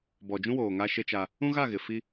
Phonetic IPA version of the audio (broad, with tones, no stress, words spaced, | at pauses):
bɔ˨d͡ʒũ˦woː˨ ŋa˦ʃe˦t͡ʃa˦ | ũ˦ɣa˦˨ɣɪ˨ fi˦